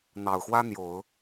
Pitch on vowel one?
low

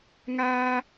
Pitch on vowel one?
high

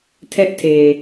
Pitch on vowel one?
high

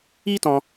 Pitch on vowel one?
high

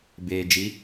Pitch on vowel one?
low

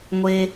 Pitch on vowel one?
low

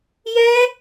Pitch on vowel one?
high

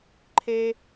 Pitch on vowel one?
high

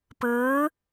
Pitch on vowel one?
rising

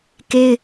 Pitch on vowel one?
high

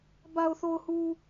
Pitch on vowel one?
low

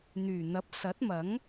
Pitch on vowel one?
low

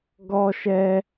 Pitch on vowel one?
high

